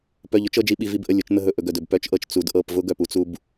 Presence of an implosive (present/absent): present